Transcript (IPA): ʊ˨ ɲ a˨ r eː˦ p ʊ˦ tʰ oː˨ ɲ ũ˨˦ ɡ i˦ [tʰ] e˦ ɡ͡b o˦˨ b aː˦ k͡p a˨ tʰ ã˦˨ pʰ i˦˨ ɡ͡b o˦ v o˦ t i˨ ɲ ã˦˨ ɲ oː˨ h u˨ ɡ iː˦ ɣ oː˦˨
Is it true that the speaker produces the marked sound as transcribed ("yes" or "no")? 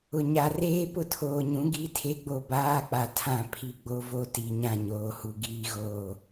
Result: yes